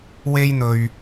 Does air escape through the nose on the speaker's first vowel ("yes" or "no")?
no